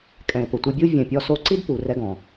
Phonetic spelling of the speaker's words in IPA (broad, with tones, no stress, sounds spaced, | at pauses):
kʼ ɛ̃˨ ɪ̯ p ʊ˨ tʷ ɪ˧ bʲ u˦ vʲ ɛ̃˨ pʲ ɔ˧ s o˧ ǀ i˦ d p u˨ r ɛ˧ ɡ ɔ̃˨